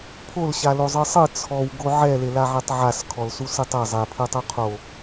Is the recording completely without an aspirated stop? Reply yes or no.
no